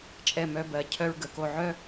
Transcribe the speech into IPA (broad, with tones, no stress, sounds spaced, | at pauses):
t͡ʃʼ ɛ˥˧ m œ˥ b ɜ˧˩ cʰ œ˥ ɹ ɡ ə˩˧ k o˥˧ ʕ œ˥